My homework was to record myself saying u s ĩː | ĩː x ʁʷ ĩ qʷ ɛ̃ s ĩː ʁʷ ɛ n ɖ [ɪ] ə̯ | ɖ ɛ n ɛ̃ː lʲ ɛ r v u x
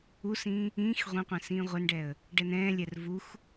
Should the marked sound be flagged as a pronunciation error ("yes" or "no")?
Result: yes